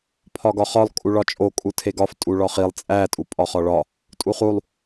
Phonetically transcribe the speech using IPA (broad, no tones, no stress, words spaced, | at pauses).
pʰɒɡɒχɒlˠ kʼuɭɒt͡ʃʼo kʼutʰeɡɒf tʼuɭɒχilˠ t͡sʼæ tʼupʼɒχɒɭɒ | tʼuχulˠ